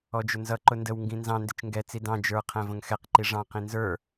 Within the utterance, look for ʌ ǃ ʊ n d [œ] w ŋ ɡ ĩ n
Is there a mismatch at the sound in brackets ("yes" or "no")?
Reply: yes